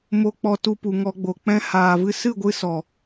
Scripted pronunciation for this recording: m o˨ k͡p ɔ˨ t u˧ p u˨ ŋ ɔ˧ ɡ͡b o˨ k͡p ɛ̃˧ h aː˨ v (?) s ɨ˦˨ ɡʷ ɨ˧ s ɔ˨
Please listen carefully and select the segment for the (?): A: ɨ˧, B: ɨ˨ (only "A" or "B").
A